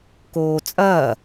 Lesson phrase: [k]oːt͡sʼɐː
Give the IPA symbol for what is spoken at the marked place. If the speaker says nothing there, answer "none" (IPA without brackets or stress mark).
k